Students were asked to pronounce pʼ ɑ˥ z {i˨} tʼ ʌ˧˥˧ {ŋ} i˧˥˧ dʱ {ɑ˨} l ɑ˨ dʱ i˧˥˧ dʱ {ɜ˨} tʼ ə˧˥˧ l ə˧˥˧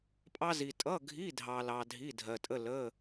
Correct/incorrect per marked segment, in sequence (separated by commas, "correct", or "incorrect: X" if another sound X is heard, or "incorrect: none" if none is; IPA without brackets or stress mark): correct, incorrect: ɡʱ, correct, correct